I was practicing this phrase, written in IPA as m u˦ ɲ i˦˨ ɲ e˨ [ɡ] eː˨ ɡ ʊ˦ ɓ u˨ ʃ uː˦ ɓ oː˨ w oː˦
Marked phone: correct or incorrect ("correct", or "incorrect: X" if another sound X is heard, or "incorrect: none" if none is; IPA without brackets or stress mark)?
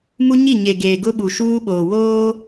correct